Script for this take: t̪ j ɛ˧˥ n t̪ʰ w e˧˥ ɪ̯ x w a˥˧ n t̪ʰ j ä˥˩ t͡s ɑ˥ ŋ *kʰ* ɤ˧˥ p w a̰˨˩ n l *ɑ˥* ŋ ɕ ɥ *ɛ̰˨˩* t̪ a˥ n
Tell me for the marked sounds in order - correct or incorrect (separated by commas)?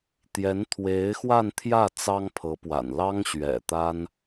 incorrect, correct, correct